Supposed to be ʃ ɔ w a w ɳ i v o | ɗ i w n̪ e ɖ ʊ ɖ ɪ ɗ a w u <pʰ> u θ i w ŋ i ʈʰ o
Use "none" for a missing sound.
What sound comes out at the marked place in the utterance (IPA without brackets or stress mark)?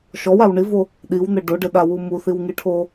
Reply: m